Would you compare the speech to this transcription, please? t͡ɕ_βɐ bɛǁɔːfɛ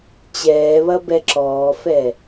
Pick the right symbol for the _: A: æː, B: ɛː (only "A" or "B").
B